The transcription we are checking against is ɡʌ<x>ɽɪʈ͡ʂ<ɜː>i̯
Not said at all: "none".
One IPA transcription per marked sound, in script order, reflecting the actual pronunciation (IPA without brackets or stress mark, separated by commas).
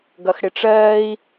x, ɜː